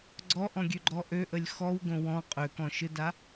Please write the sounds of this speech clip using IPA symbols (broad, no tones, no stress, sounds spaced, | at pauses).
ɡ͡ǀ ɔ ʔ ɔ̃ ɡʲ ø ɡ͡ǃ ɔ ʔ ø ʔ ə lʲ x ɔ w ɡ õ w ɔ̃ qʼ ø k ɔ̃ ʃ ɯ d a